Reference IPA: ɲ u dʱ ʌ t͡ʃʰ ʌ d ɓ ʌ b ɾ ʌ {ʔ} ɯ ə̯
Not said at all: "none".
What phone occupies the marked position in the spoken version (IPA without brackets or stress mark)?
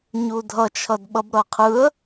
qʰ